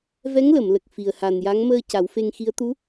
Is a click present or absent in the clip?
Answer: absent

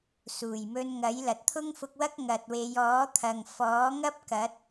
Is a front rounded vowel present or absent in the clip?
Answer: absent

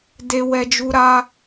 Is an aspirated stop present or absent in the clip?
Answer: absent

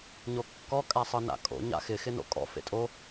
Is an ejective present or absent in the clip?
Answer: present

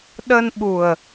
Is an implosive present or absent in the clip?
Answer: present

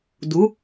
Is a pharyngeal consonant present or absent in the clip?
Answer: absent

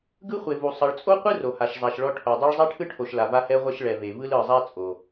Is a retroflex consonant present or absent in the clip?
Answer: present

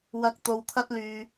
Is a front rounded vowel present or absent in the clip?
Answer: present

